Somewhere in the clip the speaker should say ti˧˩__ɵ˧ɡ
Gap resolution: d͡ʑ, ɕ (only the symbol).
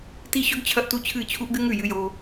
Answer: ɕ